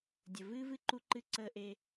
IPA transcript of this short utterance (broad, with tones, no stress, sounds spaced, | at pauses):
dʲ ə˨ v ɨː˦ v ɨ˦˨ ǃ u˦ ǃ ɨ˦ ǀ əː˦ ʔ e˦